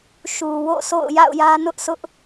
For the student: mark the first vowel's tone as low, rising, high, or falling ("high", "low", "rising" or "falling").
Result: low